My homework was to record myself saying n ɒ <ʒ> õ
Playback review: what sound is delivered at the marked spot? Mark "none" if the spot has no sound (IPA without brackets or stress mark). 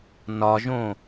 ʒ